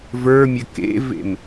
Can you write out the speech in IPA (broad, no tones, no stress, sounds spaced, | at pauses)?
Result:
v ə˞ mʲ ɘ k ḛ v ḛ m